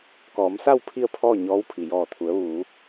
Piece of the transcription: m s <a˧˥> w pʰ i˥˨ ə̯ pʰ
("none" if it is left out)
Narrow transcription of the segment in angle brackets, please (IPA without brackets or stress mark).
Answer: a˥˨